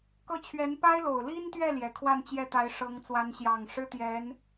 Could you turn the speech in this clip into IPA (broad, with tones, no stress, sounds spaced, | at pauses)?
k ɤ˥˩ t͡ɕʰ ɥ ɛ˧˥ n p a˥ ɪ̯ l o˨˩ ʊ̯ l i˥ n t̪ ɥ ɛ˥˩ l j ɛ˨˩ kʰ w a˥˧ n t͡ɕ j ɛ˥˩ t̪ a˧˥ ɪ̯ ʂ ɤ˧˥ ŋ t͡s w a˧˥ n ɕ j ɑ˨˩ ŋ ʂ ɻ̩˥ t̪ j ɛ˧˥ n